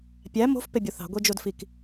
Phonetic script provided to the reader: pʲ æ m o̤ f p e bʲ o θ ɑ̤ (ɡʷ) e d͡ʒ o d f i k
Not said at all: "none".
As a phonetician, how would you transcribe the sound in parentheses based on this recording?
ɡʷ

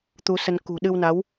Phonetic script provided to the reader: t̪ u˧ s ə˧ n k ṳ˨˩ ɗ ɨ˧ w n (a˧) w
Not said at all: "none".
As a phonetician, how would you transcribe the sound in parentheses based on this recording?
a˨˦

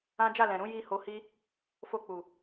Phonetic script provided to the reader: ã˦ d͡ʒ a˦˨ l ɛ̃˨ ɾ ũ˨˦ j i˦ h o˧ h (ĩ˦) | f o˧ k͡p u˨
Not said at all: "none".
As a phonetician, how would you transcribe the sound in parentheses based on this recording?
i˦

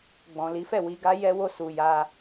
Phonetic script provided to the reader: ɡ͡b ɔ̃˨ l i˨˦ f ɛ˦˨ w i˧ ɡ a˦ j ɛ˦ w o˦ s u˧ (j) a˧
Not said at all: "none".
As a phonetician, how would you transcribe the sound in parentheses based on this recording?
j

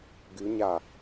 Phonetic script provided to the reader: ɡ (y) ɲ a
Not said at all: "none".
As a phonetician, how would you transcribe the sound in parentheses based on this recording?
y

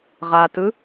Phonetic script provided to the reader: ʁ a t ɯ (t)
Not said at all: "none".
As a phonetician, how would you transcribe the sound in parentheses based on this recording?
none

